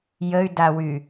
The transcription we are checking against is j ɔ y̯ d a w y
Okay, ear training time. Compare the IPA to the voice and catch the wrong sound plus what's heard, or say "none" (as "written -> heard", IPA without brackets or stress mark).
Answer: ɔ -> ə